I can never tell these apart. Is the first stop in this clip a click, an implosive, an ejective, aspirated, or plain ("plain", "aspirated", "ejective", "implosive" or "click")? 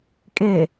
ejective